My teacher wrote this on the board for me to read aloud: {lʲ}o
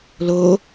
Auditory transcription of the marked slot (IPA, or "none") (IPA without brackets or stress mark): l